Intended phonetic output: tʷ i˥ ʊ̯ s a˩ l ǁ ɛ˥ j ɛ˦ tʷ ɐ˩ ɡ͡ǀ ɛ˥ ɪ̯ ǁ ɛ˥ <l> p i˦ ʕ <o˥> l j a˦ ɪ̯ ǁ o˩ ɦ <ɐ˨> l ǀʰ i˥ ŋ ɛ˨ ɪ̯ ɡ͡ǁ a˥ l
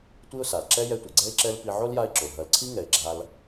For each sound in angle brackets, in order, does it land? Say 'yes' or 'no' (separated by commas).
yes, yes, yes